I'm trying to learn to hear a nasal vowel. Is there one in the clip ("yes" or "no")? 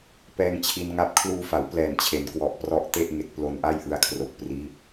no